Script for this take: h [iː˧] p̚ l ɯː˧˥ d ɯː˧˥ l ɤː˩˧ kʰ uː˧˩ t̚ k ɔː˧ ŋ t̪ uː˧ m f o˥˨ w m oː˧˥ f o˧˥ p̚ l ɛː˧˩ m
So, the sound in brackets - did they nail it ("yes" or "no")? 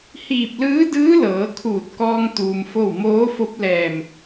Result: no